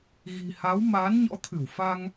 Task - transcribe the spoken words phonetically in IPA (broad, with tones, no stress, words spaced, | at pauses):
ɣi̤˨˩ha˨˦w maː˨˦nɲɔ̰˧˥t̪ʰɨ˧˩w fa˧ŋ